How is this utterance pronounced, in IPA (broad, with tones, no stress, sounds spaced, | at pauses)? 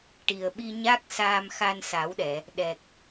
ʈ i˨˩ ə̯ ɓ i˧ ɲ a˦˥ k̚ s aː˧ m x a˧ n s a˨˩˦ w ɗ ɛ˨˩˨ | ɗ ɛ˨˩ k̚